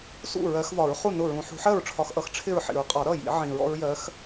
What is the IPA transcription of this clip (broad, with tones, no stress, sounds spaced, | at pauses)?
s ṵ˥˩ ɹ ɜ˨˦ x v ɒ˨˩˦ ɹ χ u˥˩ n ʊ˥˩ ɹ ũ˨˦ ħ ṳ˨˦ ħ ɜ˥˩ ɹ ʈ͡ʂʰ ɒ˨˦ x ʔ ʌ˨˦ x ʈ͡ʂʰ ɪ˥˩ ɹ ħ ḭ˨˩˦ ɹ qʼ ɒ˨˩˦ ɾ ʌ˥˩ j ḭ˨˩˦ ʕ ĩ˨˩˦ ɹ ɔ̰˨˦ ɹ j ɜ˨˦ x